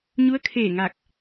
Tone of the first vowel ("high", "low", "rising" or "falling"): rising